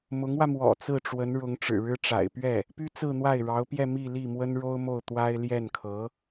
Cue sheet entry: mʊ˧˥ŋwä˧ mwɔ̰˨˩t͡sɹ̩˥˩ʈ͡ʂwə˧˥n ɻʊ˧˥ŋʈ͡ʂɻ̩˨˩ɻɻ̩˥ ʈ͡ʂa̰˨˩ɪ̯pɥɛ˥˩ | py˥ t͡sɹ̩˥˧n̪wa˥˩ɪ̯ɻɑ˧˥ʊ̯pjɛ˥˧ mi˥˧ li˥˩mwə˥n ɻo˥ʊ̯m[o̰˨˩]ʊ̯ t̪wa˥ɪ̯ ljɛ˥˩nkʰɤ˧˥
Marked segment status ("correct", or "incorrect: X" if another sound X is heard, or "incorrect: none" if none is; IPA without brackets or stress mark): incorrect: o˥˩